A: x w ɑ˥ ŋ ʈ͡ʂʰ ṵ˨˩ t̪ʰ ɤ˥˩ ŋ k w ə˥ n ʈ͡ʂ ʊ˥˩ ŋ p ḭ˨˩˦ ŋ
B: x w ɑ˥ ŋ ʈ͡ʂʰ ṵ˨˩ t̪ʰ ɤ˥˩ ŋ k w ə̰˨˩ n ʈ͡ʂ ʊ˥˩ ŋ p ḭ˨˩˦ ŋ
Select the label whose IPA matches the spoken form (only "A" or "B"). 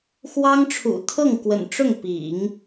B